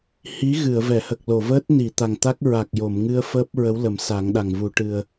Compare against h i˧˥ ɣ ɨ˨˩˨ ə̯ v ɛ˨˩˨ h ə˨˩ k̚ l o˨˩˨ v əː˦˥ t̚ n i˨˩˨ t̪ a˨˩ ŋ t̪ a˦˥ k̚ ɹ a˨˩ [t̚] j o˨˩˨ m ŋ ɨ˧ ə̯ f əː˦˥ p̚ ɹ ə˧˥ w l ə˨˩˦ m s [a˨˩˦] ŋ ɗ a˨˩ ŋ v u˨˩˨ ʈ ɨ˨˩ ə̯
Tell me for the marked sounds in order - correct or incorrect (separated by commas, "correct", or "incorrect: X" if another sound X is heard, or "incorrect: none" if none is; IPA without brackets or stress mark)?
incorrect: k̚, correct